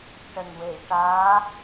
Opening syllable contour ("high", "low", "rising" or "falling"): low